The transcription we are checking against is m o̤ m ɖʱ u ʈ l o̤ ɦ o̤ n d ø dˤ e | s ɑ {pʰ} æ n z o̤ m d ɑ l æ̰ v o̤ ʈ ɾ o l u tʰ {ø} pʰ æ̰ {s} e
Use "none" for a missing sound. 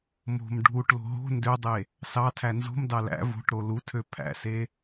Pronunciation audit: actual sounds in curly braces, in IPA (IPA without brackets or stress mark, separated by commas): tʰ, ø, s